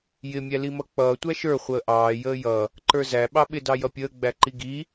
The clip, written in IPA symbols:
jɪ mʲælimʌk͡pʌː tʷæʃə˞ χʷəːʔɑː jəːjʌ | ǃə˞zæ ɓɑɓɪ dɑjʌpʲəː ɡ͡bæǃiɡi

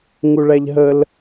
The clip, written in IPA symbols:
ŋuɭæʎɦəl

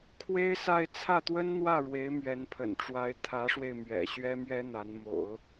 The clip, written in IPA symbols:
kʰwe˥ɪ̯sa˥˧ɪ̯ t͡sʰä˥˩t̪wə˥nn̪wä˥˩ ɻwe˧˥ɪ̯mɥɛ˧˥npʰə̰˨˩nʈ͡ʂwa˧˥ɪ̯ t̪ʰä˧˥ʂwe˧ɪ̯mɥɛ̰˨˩ ɕɥɛ˥mɥɛ˥ n̪a˧˥nmo̰˨˩˦ʊ̯

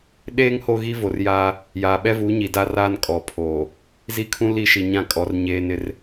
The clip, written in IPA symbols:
ɗeː˦ŋ ho˦ɣi˦vo˨rjaː˦ | jaː˨ɓɛ˦vuː˨˦ɲi˨ da˦raː˦n kʼɔ˨pʰoː˨ | zi˦kʰũ˦ li˦ʃi˨ɲã˦˨kʼɔ˨˦r ɲeː˦ nɪ˦r

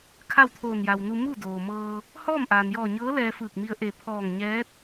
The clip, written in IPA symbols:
kʰa˥˨wt̪ʰoː˧˩nja˩wnu˧ mu˥˨doː˩ mɤː˧ | hɔː˥˨mʔaː˩njɔː˧˩ɲɤː˧˥ lɛː˧fɯː˧˩k̚mi˧ə̯ ʔe˧˩ pʰɔː˧˩ŋɲɛː˧˥t̚

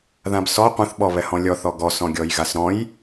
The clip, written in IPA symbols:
ðãbsɔ qʷɛ̃θɓɔ βɛhɔ̃lʲɔθɔ ɡɔsɔ̃ ɡʲɔjɣasɾɔ̃j

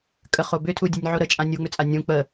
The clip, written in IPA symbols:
kʼəχo bʏtʰudʲənʲʕo ɾət͡ʃʼã nʲuŋ͡mʏt͡sʼa nʲũ k͡pə

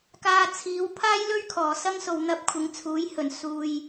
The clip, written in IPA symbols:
kaː˧t͡sʰiː˨˥w pʰaː˥jlɵ˥ɥkʰɔː˨˩ sɐ˥ŋso˨w n̪ɐ˧p̚ kʷʰɪ˨˧ŋt͡sʰuː˨˥jhɵ˨˩n suː˨j

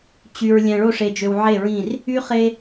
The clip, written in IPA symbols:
t͡ɕy˨ɹ lʲæ̃˨ɭo˦˨ ʂe˨d͡ʒø˨w ʕe˦˨ɹĩ˦˨r | y˦χe˦

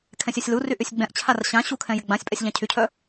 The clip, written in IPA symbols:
kʰɛ̃sʲœsʲlury ʔysʲɡ͡bɛ̃ʔt͡ɕʰar ɕã ɕukʰɛ̃ jɪɡ͡bãsʲpʼɛsʲ ʎãcʰycʰœ

